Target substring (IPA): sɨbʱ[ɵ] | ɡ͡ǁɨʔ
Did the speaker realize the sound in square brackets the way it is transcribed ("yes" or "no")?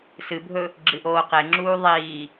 yes